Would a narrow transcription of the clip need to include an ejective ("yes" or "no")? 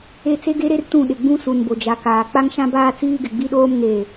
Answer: no